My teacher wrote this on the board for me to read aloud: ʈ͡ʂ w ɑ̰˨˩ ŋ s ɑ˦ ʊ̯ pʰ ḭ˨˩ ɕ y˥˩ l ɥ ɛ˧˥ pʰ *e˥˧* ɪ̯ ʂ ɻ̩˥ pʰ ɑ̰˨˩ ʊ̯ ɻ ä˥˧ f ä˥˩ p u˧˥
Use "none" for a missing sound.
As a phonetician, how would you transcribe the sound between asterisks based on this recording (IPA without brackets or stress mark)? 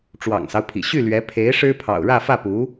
e˧˥